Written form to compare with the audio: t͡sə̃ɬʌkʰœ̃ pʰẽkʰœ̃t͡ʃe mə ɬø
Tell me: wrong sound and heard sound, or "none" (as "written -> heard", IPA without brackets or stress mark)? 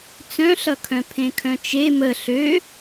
ə̃ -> œ̃